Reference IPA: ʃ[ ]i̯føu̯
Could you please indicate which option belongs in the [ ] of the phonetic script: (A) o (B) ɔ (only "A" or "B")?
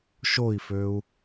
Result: A